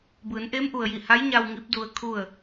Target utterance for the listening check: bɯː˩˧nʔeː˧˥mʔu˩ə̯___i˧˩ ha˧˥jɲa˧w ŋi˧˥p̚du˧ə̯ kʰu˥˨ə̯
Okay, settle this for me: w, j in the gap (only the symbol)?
j